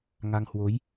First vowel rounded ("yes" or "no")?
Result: no